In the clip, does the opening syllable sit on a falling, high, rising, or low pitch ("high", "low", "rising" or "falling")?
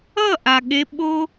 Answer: falling